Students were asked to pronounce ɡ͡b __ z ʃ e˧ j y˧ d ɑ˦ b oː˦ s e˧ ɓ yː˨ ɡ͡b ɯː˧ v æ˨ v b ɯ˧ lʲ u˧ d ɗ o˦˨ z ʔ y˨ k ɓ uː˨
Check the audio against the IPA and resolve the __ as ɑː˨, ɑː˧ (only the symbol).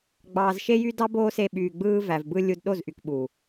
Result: ɑː˨